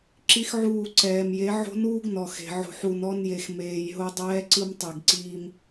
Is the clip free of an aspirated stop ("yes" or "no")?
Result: yes